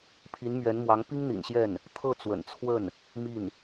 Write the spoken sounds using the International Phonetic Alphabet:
pʰi˧˥nmɥɛ˧˥nmwɑ˧˥ŋ pi˥ŋn̪ḭ˨˩nɕjɛ˥˩n | t̪ʰɤ˥˩t͡swə̰˨˩n t͡sʰwə˥˩n | mi˥˩n

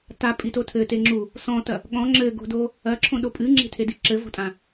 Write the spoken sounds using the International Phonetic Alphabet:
tapʼito tʰɘte ŋ͡ǁu | sɔ̃tɐ | ɠɔ̃ ŋ͡ǁɘɡo̤do | ɐǁʰõɗo pʼɨŋ͡ǁe̤tʰedi ǁɘvo̤tʼã

